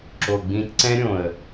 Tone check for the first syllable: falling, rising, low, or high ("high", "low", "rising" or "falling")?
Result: low